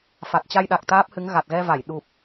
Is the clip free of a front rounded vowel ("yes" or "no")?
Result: yes